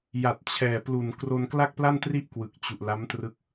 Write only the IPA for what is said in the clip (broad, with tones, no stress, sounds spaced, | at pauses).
j a˨˩ t̚ t͡ɕʰ ɛː˨˩ p l u˨˩ n k r o˧ n k l a˥˩ k̚ p l a˥˩ n t r i˥˩ ʔ k w ɯ˨˩ k̚ t͡ɕ u˨˩ ʔ l a˦˥ m t r ɯ˦˥ k̚